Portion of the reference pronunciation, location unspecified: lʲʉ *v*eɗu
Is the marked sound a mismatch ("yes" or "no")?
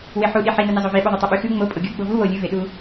no